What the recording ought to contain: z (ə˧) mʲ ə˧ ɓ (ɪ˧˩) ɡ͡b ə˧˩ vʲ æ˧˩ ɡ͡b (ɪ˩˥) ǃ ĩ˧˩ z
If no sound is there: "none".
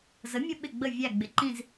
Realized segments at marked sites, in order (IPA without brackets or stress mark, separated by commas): ə˩˥, ɪ˧˩, ɪ˩˥